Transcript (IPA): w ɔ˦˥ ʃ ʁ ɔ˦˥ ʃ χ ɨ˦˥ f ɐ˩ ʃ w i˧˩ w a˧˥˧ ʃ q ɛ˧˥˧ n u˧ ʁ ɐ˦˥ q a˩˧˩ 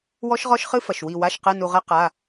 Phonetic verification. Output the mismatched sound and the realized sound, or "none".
none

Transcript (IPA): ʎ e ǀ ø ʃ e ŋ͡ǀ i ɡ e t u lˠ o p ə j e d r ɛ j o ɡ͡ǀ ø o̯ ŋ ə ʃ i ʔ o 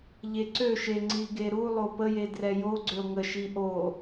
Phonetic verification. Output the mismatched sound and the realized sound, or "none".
t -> ɾ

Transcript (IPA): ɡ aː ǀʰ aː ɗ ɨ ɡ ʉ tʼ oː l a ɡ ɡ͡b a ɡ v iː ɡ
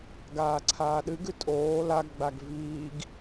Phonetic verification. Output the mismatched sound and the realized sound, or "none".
none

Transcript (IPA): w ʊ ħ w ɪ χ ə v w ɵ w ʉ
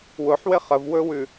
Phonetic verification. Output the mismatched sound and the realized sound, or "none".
none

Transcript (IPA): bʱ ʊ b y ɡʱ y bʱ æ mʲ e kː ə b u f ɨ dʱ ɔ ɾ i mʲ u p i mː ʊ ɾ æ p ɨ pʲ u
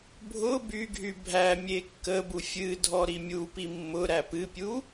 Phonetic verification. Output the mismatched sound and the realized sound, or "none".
f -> fʲ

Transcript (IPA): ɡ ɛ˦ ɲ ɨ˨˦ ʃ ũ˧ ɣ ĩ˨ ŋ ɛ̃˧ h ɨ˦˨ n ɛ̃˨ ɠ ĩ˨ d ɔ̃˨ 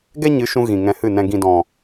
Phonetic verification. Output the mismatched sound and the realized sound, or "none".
ɠ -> ɡ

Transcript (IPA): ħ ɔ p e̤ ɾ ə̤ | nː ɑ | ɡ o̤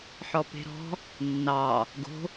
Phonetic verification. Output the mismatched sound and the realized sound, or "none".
ə̤ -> ɔ̤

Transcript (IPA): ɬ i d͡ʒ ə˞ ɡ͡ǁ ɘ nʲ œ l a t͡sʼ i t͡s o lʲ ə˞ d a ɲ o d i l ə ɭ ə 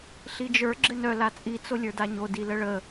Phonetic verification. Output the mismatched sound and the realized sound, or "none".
nʲ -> n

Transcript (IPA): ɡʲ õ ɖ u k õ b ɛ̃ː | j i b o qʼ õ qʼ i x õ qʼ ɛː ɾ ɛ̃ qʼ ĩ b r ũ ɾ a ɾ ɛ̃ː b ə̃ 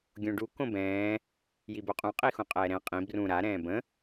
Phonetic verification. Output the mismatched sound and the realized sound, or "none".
none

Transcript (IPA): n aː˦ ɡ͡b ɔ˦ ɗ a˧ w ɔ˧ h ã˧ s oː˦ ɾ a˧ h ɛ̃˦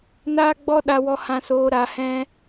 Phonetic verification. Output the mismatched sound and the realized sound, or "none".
oː˦ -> oː˧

